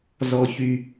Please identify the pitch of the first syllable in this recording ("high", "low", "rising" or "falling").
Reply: low